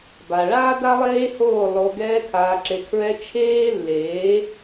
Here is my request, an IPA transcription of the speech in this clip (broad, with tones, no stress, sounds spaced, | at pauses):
b a˨ ɭ aː˦ d a˦ lˠ eː˦ h oː˦˨ lˠ o˧ ɡ ɛː˧ kʰ aː˨ ǁ e˨ kʰ ɹ ɛ˧ t͡ʃʰ eː˦ lː eː˨˦